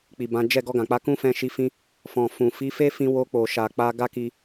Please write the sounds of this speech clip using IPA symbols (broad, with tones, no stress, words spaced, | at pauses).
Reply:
k͡pi˨bã˨˦ d͡ʒɛ˦˨ ɡɔ˧ɡã˨k͡pa˧ kũ˦fɛ̃˧ʃi˧fĩ˧ | fɔ̃˨ fũ˨ fi˨˦fe˦fĩ˧ wo˧k͡po˨ ʃa˨k͡pa˧ ɡa˦ki˧